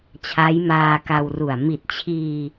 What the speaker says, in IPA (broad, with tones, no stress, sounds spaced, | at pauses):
t͡ɕʰ a˦˥ j m aː˧ k a˧ w r u˨˩ a̯ m i˨˩ t̚ t͡ɕʰ iː˧